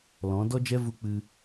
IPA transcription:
lɔ̃˨˦ dɔ˦d͡ʒɛ˦ vu˧ k͡pɨ˧

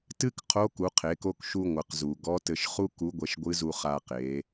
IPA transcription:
tɨ˥kqʰo˧˥ ku˩˧qʰe˩˧ko˧k ʃu˧ŋʷɨ˩qzu˩ ɡɔ˧˥tɘ˧ʃχu˥ku˧˥ ɡʷɛ˧ʃɡʷɨ˧˥zu˧ χa˧qe˩˧

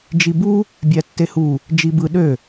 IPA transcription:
d͡ʒibu | bʲætːehu | d͡ʒibɯ ɗø

